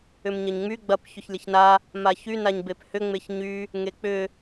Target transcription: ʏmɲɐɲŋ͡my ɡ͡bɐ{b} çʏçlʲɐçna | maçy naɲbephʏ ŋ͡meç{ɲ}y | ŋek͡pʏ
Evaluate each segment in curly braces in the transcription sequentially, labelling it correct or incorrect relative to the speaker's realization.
incorrect: p, correct

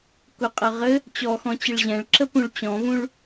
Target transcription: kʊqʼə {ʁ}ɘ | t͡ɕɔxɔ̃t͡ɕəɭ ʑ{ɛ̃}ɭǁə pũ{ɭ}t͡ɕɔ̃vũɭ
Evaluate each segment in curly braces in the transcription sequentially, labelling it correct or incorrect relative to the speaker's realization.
correct, correct, correct

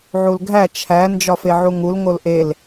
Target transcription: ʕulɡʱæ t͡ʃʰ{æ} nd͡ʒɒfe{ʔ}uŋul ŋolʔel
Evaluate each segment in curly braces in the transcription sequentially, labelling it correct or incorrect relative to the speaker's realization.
correct, incorrect: ʕ

